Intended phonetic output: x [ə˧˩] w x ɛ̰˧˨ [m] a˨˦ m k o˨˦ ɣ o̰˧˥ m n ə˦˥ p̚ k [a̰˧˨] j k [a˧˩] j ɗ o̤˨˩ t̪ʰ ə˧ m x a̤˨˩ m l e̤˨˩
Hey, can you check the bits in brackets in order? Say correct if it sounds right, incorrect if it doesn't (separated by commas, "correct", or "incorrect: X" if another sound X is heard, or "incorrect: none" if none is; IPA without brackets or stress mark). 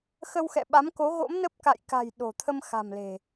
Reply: incorrect: ə˧, incorrect: ɓ, correct, incorrect: a̤˨˩